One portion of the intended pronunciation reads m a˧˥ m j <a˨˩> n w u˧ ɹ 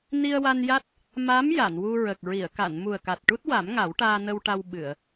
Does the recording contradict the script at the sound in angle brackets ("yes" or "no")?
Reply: yes